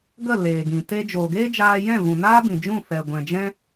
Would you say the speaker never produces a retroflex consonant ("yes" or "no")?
yes